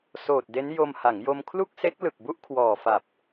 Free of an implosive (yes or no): yes